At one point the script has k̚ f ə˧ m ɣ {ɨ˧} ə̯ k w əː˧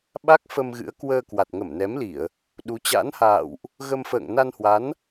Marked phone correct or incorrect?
incorrect